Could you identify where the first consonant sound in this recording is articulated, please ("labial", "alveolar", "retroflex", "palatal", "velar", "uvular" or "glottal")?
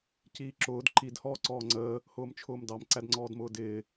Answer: palatal